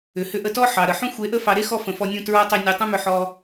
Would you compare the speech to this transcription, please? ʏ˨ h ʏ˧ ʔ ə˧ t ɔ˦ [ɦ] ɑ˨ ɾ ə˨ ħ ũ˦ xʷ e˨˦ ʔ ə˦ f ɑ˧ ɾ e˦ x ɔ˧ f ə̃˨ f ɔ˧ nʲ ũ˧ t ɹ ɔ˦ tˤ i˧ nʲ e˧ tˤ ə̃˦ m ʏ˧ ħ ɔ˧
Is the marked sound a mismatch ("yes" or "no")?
yes